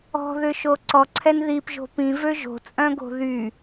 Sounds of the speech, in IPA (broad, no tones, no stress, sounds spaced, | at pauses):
ɔ̤ ð ʏ ʃ o ǀ ɔ ǀʰ ɛ n ð i p ʒ o̤ p ĩ v ø ʒ o̤ t͡sʼ œ̃ ɡ o̤ ð y